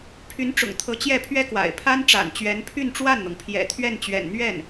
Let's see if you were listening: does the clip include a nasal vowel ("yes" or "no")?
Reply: no